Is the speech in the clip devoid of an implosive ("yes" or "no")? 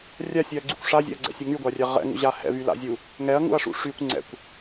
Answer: yes